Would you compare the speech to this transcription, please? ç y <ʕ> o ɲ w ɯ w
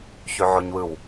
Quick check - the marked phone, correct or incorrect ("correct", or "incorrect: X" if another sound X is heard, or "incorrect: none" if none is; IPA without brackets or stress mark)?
correct